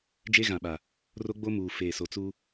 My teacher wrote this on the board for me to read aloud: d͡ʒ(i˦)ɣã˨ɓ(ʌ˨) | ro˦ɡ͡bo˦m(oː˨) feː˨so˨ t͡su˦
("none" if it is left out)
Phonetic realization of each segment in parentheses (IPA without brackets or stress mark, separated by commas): e˦, a˨, uː˨